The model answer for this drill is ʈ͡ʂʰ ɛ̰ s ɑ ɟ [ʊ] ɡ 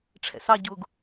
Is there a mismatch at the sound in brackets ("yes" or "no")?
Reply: no